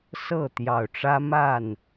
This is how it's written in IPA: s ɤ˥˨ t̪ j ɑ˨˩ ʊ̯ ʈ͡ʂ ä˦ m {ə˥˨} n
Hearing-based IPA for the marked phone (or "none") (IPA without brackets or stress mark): a˥˨